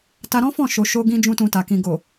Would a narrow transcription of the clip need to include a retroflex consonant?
no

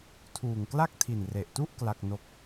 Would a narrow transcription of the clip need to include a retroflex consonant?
no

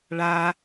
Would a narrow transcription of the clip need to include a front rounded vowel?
no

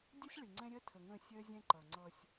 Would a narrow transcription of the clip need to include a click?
yes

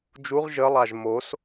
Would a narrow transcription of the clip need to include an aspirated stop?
no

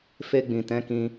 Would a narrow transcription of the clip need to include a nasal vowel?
yes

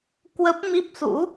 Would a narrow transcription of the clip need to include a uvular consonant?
no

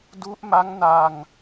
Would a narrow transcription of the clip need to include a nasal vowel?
no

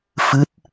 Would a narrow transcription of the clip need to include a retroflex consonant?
no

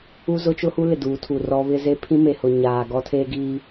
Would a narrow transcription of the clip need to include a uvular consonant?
no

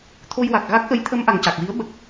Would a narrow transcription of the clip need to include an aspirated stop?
yes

